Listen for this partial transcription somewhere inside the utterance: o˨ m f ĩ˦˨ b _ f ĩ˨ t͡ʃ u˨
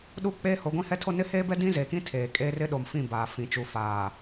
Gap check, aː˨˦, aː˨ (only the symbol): aː˨